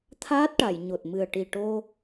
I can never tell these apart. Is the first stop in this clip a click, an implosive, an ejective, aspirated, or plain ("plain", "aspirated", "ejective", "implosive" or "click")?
aspirated